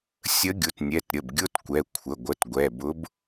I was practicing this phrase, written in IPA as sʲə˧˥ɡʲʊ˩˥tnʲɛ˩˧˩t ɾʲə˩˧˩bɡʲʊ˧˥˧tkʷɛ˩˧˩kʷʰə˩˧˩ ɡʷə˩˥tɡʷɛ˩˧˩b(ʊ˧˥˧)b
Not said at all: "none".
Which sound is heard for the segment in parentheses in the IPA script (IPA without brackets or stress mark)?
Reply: ʊ˧˥